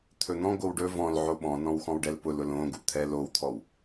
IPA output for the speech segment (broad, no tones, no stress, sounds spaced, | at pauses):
t̪ʰ ɵ n̪ ɔ̃ ɡ o w ɖ ɵ v ɔ̃ l ʕ o ɓ ɔ̃ n ɔ̃ w x ɔ̃ w ɖ ɛ l p ʊ l ʊ l õ ɡ u t̪ʰ ɛ l o w t̪ʰ ɔ w